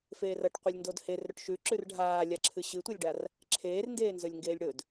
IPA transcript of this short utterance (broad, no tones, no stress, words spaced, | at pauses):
feːrɐʈ qʷɨlʲndodher ɾɵʈʃʉ ǁʉrɖʱaːlʲa ǁʰɨɕɨtʷɐlʲɖar | ǁʰeːrndeːnzɵlʲŋɡeːlʲ ɽɵd